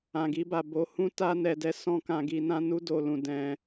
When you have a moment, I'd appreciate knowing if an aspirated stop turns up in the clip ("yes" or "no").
no